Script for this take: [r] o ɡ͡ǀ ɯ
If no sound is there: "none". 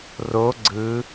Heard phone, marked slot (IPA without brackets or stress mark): r